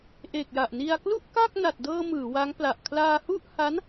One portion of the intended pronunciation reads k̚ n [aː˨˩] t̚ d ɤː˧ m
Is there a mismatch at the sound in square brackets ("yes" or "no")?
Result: yes